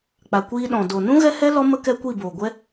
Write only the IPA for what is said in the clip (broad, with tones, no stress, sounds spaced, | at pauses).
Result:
k͡p a˨ kʷ iː˧ ɗ ɔ̃˨ d o˨ n ũ˦ ɣ ɛ˦ h ɛ˦ l ɔ˦ m ə˦ k ɛ˦ kʷ i˦˨ b oː˨ ɡʷ ɛ˦